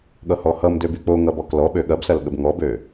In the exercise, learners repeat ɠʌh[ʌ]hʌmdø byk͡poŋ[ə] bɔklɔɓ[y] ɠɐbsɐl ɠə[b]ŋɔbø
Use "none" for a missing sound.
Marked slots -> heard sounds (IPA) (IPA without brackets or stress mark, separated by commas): ɔ, ʌ, ø, b